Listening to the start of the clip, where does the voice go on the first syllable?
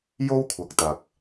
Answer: high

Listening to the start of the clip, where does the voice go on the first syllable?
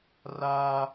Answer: high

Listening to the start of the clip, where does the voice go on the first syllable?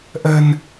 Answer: low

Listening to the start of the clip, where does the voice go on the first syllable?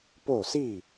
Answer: falling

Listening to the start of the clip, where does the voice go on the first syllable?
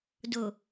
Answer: low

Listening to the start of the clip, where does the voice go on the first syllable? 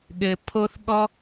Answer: low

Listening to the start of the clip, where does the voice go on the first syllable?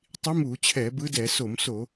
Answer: rising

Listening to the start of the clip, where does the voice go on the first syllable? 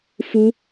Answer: high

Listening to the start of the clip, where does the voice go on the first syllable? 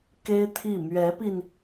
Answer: high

